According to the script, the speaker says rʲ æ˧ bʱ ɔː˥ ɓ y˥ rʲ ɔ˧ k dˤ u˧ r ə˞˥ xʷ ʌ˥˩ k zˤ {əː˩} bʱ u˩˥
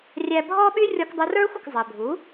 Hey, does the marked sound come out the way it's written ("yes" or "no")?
yes